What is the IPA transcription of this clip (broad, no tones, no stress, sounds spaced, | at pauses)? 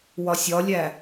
w ɒ sʲ ɒ lʲ æ